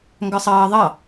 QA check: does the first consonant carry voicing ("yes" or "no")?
yes